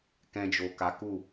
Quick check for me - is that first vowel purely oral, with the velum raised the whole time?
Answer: no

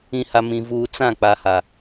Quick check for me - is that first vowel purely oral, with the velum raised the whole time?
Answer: no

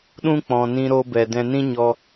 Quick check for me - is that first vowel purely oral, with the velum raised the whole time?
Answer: no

